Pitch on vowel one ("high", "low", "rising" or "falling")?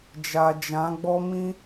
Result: low